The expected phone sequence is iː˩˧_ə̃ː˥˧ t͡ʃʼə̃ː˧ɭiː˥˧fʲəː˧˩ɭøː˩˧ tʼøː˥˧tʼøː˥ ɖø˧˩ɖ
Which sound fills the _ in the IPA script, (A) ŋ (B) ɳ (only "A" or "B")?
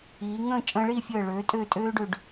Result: A